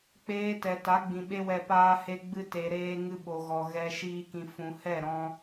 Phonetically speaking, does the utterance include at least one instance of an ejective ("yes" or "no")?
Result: no